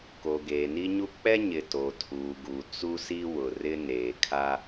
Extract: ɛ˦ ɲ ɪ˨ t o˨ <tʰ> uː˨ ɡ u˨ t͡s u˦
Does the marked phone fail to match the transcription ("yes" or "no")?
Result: no